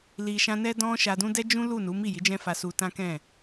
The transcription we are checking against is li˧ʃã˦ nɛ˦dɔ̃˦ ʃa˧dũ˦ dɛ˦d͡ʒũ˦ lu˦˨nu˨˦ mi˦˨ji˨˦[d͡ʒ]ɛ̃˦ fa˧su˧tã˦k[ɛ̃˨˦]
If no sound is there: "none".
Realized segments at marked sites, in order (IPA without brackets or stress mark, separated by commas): d͡ʒ, ɛ̃˦˨